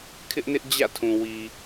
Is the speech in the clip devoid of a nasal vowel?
no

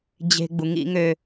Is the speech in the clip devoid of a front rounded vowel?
no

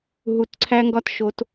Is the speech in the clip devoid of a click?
no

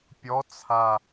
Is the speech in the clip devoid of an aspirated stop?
no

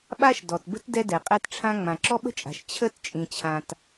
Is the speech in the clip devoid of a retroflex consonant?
no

